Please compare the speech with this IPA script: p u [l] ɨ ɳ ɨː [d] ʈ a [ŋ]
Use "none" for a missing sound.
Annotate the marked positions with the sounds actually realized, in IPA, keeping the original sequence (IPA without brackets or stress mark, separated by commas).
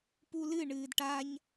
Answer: l, d, ɲ